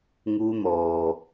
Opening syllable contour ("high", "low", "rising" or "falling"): high